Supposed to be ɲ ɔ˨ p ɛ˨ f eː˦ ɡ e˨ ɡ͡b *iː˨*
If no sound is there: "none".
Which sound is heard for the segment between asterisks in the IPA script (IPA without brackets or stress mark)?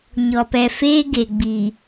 iː˨